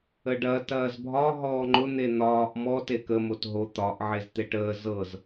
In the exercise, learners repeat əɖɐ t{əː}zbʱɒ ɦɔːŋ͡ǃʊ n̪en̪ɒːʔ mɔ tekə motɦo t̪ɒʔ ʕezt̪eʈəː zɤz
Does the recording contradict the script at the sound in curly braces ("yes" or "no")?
yes